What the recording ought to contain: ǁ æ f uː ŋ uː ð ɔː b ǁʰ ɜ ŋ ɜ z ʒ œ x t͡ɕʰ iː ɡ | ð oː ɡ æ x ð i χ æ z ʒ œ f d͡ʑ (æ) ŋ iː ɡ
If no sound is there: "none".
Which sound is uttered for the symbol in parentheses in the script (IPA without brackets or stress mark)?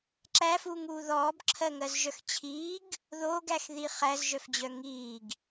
œ